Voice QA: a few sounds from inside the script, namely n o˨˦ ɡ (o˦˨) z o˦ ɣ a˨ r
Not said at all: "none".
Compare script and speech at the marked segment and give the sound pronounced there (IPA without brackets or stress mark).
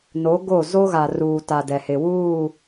o˦˨